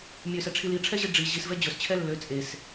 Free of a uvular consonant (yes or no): yes